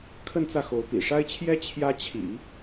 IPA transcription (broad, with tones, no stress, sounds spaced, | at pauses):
kʰ ə˥˧ n t͡s ä˥˩ x o˧˥ ʊ̯ p ḭ˨˩ ʂ a˥ ɪ̯ t͡ɕʰ j ɛ˥ t͡ɕʰ j ä˥ t͡ɕʰ ḭ˨˩˦